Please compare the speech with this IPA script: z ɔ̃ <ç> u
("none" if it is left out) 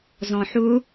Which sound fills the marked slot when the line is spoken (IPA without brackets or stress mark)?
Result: ħ